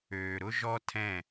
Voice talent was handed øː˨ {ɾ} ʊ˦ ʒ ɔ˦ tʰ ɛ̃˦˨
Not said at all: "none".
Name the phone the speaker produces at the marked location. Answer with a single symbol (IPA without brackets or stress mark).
ɾ